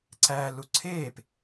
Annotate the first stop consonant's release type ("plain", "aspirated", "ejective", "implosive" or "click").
click